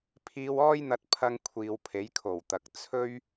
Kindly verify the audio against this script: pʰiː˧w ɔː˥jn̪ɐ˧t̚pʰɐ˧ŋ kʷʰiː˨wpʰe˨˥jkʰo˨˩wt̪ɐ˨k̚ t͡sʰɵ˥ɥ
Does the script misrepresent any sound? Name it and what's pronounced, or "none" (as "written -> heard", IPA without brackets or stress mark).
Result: none